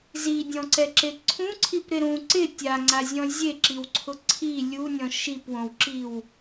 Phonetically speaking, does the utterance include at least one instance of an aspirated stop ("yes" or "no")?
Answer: yes